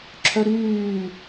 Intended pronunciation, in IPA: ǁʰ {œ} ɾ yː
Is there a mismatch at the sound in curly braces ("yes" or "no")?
no